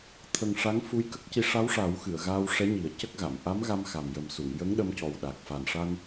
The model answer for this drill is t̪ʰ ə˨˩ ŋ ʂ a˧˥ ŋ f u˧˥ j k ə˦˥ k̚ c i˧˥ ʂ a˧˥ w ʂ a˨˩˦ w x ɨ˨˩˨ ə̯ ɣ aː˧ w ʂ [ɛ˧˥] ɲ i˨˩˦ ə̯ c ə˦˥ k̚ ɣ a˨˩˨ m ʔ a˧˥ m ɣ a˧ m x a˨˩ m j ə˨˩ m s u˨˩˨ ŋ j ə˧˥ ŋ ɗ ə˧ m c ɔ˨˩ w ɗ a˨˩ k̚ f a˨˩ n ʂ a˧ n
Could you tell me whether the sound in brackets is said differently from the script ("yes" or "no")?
no